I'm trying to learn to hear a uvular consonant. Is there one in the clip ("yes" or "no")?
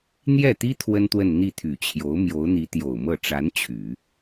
no